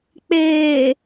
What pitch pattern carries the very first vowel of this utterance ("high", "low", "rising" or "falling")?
low